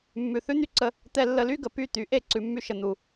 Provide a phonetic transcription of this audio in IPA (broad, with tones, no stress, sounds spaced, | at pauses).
mː ʉ˨ θ ʉ˦ n̪ y˦ ǀ ə˧ | t̪ ɛ˧ lː ə˧ l y˦ ɡ ə˨ p y˦˨ t̪ y˨˦ ʔ e˦˨ ǀ ʉ˨ mː y˧ ʃ ə˨ n̪ u˨